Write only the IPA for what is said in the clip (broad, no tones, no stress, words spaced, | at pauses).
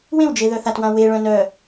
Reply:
wẽwd͡ʒe ðœθatwã we ɭœ̃nœ